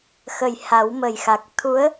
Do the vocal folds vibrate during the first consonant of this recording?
no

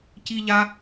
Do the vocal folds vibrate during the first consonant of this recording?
no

